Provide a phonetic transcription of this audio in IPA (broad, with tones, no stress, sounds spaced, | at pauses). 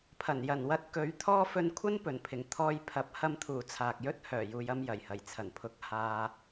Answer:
pʰ ɐ˨˩ n j ɐ˨˩ n w ɐ˧ t̚ k ɵ˨˥ ɥ t̪ʰ ɔː˥ f ɵ˧ n kʷʰ ɐ˥ n p ɵ˨˩ n pʰ ɪ˨˩ ŋ t̪ʰ ɔː˧ j pʰ ɐ˨˥ p̚ h ɐ˧ m t̪ʰ uː˨˩ t͡sʰ aː˨ k̚ j ɵ˥ t̚ h œː˨˩ j uː˨ j ɐ˧ m j ɐ˨˩ j h ɐ˨˩ j t͡sʰ ɐ˨˩ n pʰ ʊ˨˥ k̚ h aː˧